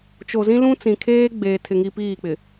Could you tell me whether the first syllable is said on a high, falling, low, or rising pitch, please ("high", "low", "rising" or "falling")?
low